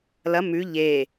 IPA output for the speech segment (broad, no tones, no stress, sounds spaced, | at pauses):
l ɐ m ʉ ʎ e